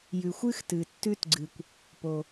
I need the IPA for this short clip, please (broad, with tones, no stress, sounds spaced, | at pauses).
j ʉ˩ xʷ ɨ˥ x t ɨ˩ tː ʉ˥ t ɡ͡ǀ ɨ˩ kʷ | p o˩